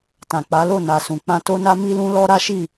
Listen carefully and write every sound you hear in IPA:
tã˨k͡pa˨˦lo˦˨ na˨sũ˨ k͡pã˧to˦na˦ mi˦lũ˦lɔ˦ ɾa˦ʃi˦˨

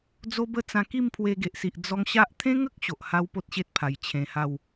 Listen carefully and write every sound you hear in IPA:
d͡zo˦bə˥˧ t͡sã˧ki˥˧mpʰwe˧ ɡe˨ʔsi˨ʔ d͡zɔ˦ŋ ɕa˦ʔ t̪ʰẽ˦ŋə˦k̚ ɕo˨ʔha˦wpo˦t̚ɕe˦t̚ pʰa˨˩j t͡ɕʰẽ˧ha˥˧w

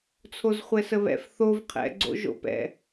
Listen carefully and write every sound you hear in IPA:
t͡sʰozχʷɛsəβɛ̰f θov qʰɛ̰ɡ͡ǀo̰ ʒo̰pɛ̰

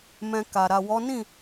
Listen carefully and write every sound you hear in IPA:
mɛ̃˧ka˨ ɾa˨wɔ˨˦nĩ˦˨

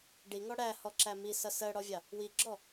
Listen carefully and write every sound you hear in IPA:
ɖiŋɔ ɽæhɔǁæ misʌ sɜɽɔvʲɑ | wiɡ͡ǁɔ

